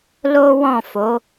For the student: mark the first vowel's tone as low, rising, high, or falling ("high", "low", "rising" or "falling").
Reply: high